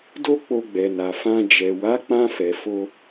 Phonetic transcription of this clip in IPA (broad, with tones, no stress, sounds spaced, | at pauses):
d o˦ k͡p o˧ ɡ͡b ɛ˨ n a˨ f ã˧ d͡ʒ ɛ˨ w a˨˦ k͡p ã˧ f ɛ˨ f o˧